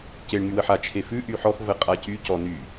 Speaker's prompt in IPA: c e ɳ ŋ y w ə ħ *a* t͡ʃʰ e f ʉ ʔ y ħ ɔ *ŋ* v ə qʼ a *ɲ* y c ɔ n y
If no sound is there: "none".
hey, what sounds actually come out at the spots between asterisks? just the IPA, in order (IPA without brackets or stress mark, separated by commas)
a, x, c